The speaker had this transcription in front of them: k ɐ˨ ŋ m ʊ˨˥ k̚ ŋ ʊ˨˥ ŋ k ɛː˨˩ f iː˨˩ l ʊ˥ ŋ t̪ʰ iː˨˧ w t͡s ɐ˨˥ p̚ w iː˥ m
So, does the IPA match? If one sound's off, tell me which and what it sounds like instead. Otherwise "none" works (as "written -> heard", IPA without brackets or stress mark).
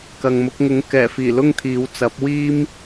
none